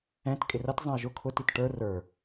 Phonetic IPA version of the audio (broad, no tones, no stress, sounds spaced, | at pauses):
ɛ̃ t kʼ ɪ r ʌ t zˤ ɛ̃ ə̯ ʒ ʊ kʰ ʊ t i t ʈ ə˞ r ə˞